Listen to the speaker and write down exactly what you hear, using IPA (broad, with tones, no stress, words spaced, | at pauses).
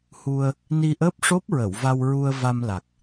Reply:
hu˧ə̯ | ni˧ʔəː˦˥p̚ʂo˦˥p̚ɹə˨˩˨w va˧wɹu˧ə̯ va˧mla˨˩k̚